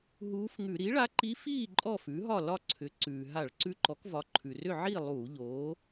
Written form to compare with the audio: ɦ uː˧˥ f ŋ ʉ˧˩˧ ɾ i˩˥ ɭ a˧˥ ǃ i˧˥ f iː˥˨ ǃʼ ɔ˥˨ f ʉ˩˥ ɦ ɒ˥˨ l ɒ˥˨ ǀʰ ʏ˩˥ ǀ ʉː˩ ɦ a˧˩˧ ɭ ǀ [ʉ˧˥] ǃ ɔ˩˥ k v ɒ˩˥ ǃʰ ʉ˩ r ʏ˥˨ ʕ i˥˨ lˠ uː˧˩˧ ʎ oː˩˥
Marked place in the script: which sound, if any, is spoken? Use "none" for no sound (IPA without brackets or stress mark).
ʉ˧˥